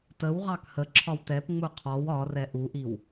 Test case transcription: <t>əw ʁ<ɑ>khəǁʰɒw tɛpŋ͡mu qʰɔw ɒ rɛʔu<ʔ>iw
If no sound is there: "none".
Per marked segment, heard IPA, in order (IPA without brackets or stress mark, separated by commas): t, ɑ, ʔ